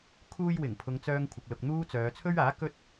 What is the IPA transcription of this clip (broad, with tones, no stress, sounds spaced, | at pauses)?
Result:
kʰ uː˧ j w ɪ˨˩ ŋ pʰ ʊ˨˧ ŋ t͡s œː˧ ŋ kʷʰ ɪ˨ k̚ l ʊ˨ k̚ n̪ uː˥ t͡s œː˨˧ t͡sʰ ɵ˥ ɥ aː˨˥ k ɵ˥ t̚